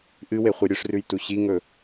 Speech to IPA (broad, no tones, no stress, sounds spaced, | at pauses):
ʔ ɨ w e χʷ ɨ ɾʲ ɵ ʂ r ʉ j t u ɕ i ŋ ɵ